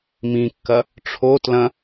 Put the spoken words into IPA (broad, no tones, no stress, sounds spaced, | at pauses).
m ĩ kː ɐ | ʈ͡ʂʰ o t l ɐ̃